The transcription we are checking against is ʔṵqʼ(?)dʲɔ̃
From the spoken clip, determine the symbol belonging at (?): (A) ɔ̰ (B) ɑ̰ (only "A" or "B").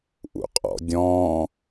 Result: A